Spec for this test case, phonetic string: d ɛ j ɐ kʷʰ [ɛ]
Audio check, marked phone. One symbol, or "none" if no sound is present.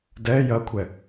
ɛ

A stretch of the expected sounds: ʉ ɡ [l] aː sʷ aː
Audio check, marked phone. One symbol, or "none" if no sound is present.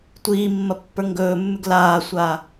l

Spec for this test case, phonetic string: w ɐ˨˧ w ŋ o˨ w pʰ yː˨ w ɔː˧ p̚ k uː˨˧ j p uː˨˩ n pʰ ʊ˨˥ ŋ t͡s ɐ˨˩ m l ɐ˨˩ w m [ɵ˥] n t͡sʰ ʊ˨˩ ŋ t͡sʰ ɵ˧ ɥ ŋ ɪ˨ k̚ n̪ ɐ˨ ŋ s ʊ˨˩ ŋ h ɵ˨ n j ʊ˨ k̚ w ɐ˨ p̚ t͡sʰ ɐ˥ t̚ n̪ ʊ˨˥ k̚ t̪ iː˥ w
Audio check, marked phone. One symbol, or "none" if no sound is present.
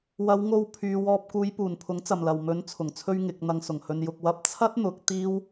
ɵ˨˥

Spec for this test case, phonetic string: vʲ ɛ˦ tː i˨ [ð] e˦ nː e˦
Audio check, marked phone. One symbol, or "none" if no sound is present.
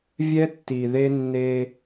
ð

